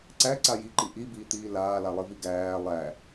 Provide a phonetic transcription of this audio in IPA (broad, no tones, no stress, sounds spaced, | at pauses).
ǀ æ ǀ a j i ǃ i ʔ i b iː t̪ iː l aː l a lˠ i v i ɡ æː lˠ æ